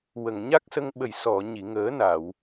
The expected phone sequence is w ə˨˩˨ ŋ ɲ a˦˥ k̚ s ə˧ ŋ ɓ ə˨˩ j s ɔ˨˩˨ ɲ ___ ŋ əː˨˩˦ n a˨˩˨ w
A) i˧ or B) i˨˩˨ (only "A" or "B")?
B